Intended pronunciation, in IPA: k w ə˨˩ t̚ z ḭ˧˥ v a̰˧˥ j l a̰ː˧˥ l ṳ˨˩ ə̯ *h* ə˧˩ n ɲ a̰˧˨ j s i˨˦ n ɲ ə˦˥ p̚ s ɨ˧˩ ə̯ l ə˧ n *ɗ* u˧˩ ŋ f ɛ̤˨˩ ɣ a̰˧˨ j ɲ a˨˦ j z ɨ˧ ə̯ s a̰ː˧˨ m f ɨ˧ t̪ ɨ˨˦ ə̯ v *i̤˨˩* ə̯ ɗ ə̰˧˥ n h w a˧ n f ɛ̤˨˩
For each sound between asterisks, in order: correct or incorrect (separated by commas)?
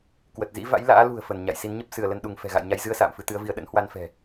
incorrect, correct, incorrect